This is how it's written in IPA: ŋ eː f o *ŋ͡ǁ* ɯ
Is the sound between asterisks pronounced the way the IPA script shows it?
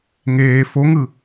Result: no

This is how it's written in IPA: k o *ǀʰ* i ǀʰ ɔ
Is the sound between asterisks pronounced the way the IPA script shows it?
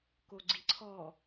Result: no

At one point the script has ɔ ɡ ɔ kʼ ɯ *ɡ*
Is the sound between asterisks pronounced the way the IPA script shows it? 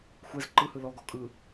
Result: no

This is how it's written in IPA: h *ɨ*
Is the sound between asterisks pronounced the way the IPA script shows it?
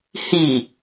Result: no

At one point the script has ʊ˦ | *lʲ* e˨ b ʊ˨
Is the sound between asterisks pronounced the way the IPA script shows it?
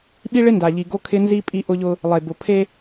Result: no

